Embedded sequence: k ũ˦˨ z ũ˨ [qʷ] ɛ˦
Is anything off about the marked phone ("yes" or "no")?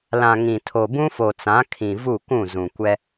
yes